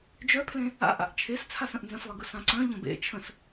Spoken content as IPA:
d͡ʒ œ pʰ l ẽ | a̰ ʔ a̰ ʔ t͡ʃʰ e s t͡sʰ a s ə̃ ʔ n z ə̃ s lˠ e ɡ ɯ s ã ǀ œ̃ ʎ ə̃ b ḛ t͡ʃʰ ə̃ s

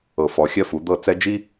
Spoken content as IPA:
ɤ˨ f ɔ˨ xʲ ɜ˦ f u˨˦ d̪ ɤ˦˨ t͡s ɛ˦ d͡ʒ i˦

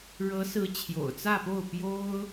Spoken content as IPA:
ɻ ɤ˧˥ s ɹ̩˧˥ t͡ɕʰ j o̰˨˩ ʊ̯ t͡s ä˥˧ p o˥˩ ʊ̯ p j o˥ ʊ̯

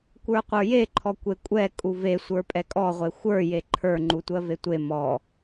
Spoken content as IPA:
kʷ ə˞ qʷ ə˞ j e ǃʰ ɔ kʷ e kʷʼ ɛ kʼ u v e sʷ ə˞ pʼ ɛ kʼ ɔ ʁʷ e xʷ ə˞ j e ǃʰ ə˞ ŋ͡ǃ u tʷ ɜ v e tʷ e m ɔ

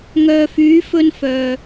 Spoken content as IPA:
ŋ œː˨ f yː˨˧ f ɵ˧ n f œː˨

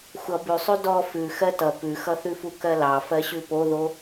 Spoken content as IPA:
xʷ ʌ b ʉ sˤ ʉ d ɔ f ʉ x ɜ t ʌ p ʉ x ʌ θ ʉ f u k ɜ l ɑ f ɜ ɕ ʉ p o ð o

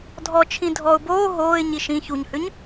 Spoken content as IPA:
dʱ ɔ t͡ʃʰ ĩ dʱ ɔ ʊ̯ b oː ɦ oː ɪ̯ ɲ i ʃ ĩ ç u ɲ h ʏ ɲ

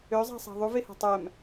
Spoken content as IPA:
ø zˤ æ̤ sˤ æ̤ ðˤ u v e h ɑ̤ tˤ æ m

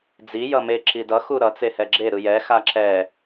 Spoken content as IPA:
d͡z i j ʌ m e ǁ i d ʌ x u ɾ ʌ t͡s e h ɛ ɡ͡ǁ e ɾ ɯ j ɛ x a ǁ ɛ

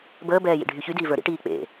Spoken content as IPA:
b əː b ɛː j ḭ ɖʱ y ç y d iː v ə˞ ɾ ḭ ʈ iː k͡p ḛ

